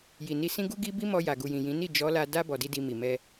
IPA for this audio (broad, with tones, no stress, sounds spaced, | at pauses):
j i˨ n i˧ s ĩ˦ ɡ u˦ ɡ i˦ b i˦ m ɔ˧ j a˨ ɡ u˨ j ĩ˨ j ĩ˨˦ n i˦˨ d͡ʒ ɔ˨˦ l a˧ d a˦ b ɔ˧ d i˦ d i˧ m i˨ m ɛ˧